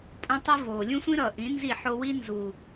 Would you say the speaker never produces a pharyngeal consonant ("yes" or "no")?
no